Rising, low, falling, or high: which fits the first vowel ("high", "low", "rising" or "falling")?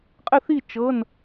falling